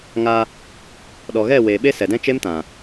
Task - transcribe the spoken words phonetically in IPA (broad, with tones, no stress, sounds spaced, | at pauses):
ŋ a˧ | ɗ ɔ˨ ɣ ɛ˦˨ w e˨ ɓ e˦ s ɛ˨ d ɛ̃˦ t͡ʃ e˦ m t ã˨